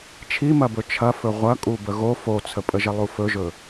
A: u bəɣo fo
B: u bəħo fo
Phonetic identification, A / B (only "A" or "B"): A